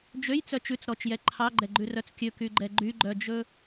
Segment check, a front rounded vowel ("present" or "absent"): present